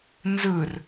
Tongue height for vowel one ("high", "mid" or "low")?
high